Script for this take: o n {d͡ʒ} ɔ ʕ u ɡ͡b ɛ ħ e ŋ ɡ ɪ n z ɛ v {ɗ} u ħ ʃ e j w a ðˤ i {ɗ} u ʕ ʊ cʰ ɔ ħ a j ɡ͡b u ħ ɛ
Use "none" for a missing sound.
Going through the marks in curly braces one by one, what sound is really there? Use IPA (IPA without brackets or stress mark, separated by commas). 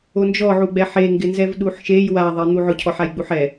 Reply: d͡ʒ, ɗ, n̪